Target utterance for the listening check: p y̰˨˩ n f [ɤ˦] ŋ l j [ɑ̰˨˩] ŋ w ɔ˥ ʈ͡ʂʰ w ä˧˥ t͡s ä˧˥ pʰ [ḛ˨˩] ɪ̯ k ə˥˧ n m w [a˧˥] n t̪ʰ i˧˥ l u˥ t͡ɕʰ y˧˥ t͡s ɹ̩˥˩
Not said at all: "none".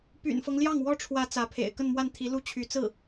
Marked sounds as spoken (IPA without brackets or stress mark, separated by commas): ɤ˦, ɑ˥˩, ḛ˨˩, a˥˩